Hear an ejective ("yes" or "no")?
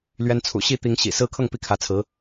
no